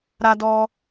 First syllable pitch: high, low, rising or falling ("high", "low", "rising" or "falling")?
high